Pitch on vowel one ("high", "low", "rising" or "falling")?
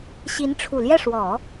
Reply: rising